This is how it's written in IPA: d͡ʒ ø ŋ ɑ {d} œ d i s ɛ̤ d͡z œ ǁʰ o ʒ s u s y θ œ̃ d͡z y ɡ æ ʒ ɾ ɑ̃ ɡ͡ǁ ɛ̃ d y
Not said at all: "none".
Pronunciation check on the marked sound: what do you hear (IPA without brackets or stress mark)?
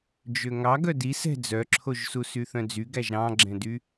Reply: ɡ